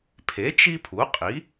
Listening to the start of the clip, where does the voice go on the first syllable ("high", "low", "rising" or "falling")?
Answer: rising